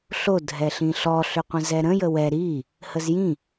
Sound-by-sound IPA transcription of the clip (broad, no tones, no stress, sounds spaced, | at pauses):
ɬ o dʱ ɛ ɬ ĩ ɬ ɔ ɬ ʏ qʷ ə̃ z ɛ ɾ ə̃ j ə w ɛ ɾ i | h ə z j ĩ